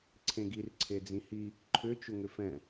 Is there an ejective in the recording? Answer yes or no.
no